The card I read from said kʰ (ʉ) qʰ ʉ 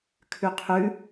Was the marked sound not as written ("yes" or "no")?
no